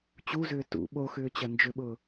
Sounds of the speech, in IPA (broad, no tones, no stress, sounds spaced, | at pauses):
t͡ɕ u z ʏː t ṵ ɓ o x ʏː t͡ɕ ɐ n d͡ʒ ʏ ɓ ʊː